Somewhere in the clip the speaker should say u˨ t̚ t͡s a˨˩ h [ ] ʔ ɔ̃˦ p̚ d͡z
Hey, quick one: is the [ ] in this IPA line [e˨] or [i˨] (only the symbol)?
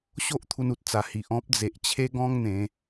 i˨